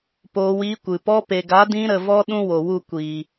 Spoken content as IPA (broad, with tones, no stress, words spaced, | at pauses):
poː˧wiː˧kʷɨ˨ pɔ˧pe˨ɡa˨˦dĩ˧ ɾə˨vɔ˧ ɗũ˦ wo˨wu˦˨ kʷiː˨